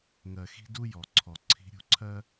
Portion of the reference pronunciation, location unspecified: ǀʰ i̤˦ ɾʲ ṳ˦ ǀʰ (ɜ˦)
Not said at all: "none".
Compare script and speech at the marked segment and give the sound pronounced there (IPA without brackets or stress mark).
ɜ˦